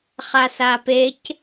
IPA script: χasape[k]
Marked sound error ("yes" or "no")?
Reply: yes